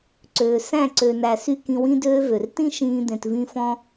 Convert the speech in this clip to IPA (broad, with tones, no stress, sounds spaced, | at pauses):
ǀ øː˨ s æ̃˦˨ ǀ ø˨ n æ˨ s y˦ k ĩ˧ w ĩ˧ d øː˧ v ø˨ r t ĩ˦ ʃ ĩː˧ d̪ ẽ˨ t v ĩ˦ f ɔ̃˦